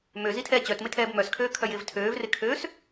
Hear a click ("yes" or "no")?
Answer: no